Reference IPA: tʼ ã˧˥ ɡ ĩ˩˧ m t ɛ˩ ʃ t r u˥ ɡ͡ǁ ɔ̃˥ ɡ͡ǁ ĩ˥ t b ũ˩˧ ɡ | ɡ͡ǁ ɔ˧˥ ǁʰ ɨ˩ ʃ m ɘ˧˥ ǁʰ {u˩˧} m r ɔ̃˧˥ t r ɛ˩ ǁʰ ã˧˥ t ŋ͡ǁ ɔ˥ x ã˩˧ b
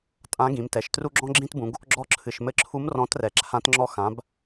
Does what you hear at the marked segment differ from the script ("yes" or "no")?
yes